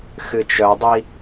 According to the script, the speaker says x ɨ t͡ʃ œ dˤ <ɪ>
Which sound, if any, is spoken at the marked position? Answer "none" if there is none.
i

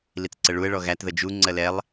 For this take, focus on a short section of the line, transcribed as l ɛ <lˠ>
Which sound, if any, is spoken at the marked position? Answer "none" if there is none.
lˠ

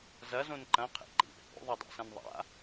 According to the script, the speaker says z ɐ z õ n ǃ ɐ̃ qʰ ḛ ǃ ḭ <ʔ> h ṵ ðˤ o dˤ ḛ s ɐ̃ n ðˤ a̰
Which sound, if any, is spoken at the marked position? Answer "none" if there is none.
ʔ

